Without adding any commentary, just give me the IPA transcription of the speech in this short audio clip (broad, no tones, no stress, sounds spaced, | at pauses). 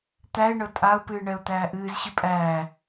t̪ æ ɪ̯ ɳ ɤ tʼ a ʊ̯ p ɨː ɳ ɛ ʊ̯ t̪ æː ʔ ɨː z ɕ ɨ pʼ æː